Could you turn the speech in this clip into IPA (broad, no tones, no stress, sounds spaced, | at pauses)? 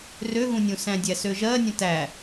r ø ɣ ũ nʲ ũ s æ̃ dʲ æ s ø ʒ ɜ nʲ ə̃ t æ